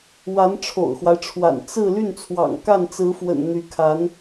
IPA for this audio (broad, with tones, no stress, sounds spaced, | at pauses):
w a˧˥ n ʈ͡ʂʰ o̰˨˩ ʊ̯ x w a˦ ɪ̯ ʈ͡ʂʰ w a̰˨˩ n t͡s ɹ̩˥˧ l y˥˩ n t͡sʰ w ɑ̰˨˩ ŋ k a˥˩ n t͡s ɹ̩˧˥ f w ə̰˨˩ n n̪ y˧˥ kʰ a˧˥ n